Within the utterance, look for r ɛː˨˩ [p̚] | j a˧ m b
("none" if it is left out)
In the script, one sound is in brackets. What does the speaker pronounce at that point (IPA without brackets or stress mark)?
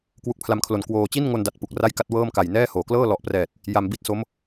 t̚